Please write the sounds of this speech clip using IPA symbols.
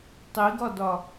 tˤiɡɒdɒ

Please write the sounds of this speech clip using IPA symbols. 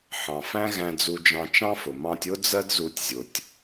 ħɑ̃˨fæ̃˦ɣæ̃˧ d͡zu˧d͡ʒɑ̃˧t͡ʃɑ̃˦fʊ˨ mɑ̃˧tʲʊ˦d͡zɜ˦d zu˦tʲzʲʊ˧tʲ

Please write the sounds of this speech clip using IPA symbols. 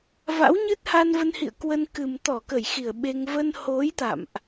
va̰˧˥wɲɨ˦˥t̚ha˧nvə˧n hḭ˧˨ə̯ kwə˧nkɨ˨˩m t̪ɔ˧˩kə˧˩j xi˧˩ə̯ɓe˧ŋ və˧nho˨˦j t̪a̰˧˨mʔ

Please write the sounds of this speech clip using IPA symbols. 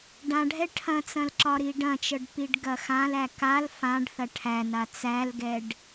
ɖãɖʱɛ ʈʰɐ̃t͡sɐ̃lǁɒɾi ɖɐ̃t͡ʃɤɖpiɖɡɐ xãlæ kal fãɖθɐ ʈʰæna t͡sælɡɛɖ

